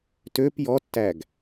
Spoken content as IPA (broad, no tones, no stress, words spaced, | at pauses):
tøp jɔtːæɡ